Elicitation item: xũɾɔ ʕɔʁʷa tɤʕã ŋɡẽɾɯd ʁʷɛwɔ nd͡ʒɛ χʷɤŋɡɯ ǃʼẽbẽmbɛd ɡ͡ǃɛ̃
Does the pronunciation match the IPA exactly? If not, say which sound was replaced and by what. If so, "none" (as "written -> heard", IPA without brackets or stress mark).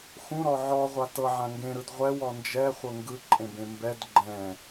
none